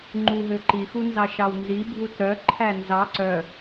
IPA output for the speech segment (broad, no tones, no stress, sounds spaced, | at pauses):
ŋ͡ǃ u ɦ ø ǃ i x u n z ɑ ʃ ɑ w n z i bʱ u t ɾ œ ǃʰ æ n z ɑ ǀ œ